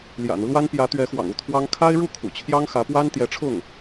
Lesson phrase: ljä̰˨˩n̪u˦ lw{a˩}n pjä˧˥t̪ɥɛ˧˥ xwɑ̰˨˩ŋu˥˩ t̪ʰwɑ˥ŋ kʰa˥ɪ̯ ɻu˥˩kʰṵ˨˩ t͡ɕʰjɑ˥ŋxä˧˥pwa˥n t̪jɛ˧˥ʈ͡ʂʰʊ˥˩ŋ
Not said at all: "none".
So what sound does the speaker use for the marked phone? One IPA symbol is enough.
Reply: a˥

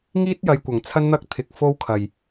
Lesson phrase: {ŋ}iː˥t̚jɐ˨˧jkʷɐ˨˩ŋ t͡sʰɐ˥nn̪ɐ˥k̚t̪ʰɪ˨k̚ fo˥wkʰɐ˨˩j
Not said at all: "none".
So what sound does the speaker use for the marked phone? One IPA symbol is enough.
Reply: ŋ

